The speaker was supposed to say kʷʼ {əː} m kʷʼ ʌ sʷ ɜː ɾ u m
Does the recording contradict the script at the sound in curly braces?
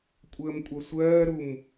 no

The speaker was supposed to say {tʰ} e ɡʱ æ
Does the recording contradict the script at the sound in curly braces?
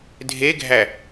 yes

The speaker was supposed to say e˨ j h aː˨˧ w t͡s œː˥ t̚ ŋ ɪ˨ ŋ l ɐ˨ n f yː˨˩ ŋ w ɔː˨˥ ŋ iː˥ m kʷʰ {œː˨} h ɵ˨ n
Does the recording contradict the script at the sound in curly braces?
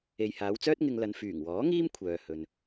no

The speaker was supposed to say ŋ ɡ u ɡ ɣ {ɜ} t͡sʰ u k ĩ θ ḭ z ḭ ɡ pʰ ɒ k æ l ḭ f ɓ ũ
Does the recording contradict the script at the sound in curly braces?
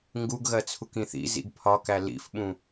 no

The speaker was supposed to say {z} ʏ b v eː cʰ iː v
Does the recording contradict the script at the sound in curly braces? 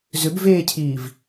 no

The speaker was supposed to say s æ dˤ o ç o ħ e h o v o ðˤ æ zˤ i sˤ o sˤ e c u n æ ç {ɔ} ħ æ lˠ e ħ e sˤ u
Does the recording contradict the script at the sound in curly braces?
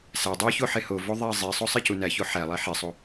yes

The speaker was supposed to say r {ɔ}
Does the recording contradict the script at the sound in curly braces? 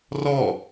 no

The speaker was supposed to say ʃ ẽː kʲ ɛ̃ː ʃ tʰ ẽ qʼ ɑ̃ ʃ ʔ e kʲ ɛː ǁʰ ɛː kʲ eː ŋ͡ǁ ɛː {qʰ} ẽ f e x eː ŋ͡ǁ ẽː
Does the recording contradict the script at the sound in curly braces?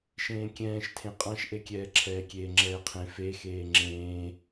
no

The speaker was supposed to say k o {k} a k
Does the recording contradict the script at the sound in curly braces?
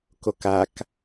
no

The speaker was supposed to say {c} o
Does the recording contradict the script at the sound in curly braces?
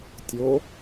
yes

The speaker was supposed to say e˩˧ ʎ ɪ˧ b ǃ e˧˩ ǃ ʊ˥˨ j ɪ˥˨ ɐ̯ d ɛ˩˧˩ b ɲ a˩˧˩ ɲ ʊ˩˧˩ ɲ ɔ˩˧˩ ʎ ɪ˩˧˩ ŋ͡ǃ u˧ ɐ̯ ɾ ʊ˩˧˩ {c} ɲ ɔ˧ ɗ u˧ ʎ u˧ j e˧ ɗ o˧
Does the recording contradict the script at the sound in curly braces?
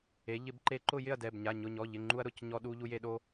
no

